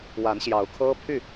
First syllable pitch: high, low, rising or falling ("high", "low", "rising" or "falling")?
rising